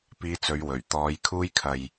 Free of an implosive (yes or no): yes